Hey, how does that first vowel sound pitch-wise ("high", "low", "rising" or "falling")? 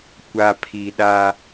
low